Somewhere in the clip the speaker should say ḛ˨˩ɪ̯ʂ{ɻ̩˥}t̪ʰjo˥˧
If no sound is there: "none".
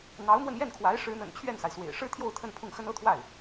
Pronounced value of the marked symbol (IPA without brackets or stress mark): ɻ̩˥